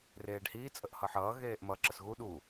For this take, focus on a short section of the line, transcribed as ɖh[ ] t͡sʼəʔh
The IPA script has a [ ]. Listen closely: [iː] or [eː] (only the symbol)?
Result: iː